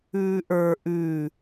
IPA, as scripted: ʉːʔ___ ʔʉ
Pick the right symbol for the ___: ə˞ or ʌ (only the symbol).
ə˞